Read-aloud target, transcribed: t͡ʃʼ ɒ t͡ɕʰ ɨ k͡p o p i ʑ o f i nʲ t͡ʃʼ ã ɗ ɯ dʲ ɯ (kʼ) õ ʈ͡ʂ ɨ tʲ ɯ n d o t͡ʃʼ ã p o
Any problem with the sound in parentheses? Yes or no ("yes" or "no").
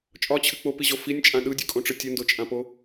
no